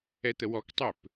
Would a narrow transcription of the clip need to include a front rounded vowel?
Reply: yes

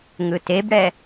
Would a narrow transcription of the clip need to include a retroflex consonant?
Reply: yes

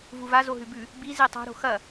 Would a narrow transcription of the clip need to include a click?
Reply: no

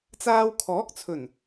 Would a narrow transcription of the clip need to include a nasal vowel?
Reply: no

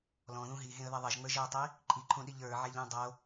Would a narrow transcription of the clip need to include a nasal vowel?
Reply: yes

